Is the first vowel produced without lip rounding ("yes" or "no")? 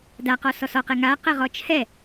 yes